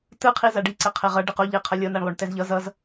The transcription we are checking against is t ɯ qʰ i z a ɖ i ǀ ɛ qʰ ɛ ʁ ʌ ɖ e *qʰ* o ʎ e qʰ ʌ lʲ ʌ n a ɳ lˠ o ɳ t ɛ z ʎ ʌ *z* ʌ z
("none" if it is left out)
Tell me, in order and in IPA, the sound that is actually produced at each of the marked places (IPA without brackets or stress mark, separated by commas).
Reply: q, z